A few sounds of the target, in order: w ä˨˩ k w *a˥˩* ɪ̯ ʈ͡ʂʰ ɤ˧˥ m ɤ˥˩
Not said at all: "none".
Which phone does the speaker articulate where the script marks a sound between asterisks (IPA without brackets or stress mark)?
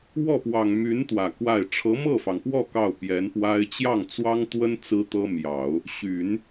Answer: a˥˩